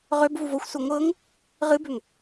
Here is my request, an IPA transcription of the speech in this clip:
ʁøb vuvoxʷsu ŋʷɤŋ | ʁɨbøŋ

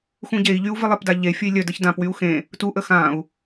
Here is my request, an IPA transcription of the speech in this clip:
xũɟei̯ʎyu̯ vɪlˠɪpda ʎe fʲəi̯lʲœdəç dãpwyu̯ xẽ | tuʔə xãu̯

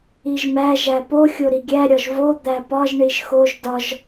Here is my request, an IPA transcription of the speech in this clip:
iʒmæ ʒæpo xʲoɾiɡʲæ ɾʲɒʒvo d̪æpɒʒ ɳiʒxoʒ dɒʒ

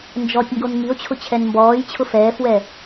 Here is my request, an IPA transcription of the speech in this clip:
nd͡ʒɔtʲŋɡon ŋio̯t͡ɕʰʊ t͡ɕʰɛnmbɔːjt͡ɕʰʊ fɛːfwɛ

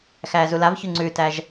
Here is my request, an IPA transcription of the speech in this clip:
xæːzulavçʉ ŋ͡ǀʉtæʒ

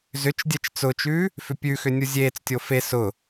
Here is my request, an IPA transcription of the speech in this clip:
zʏt͡ʃ dʲɛt͡ʃt͡sʊːt͡ʃʉː | fʏpʲʉxʏ nʲuzʲeːt͡stʲo fe sʊ

